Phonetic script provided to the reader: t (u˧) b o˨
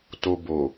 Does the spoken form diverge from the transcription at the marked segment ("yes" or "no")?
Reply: yes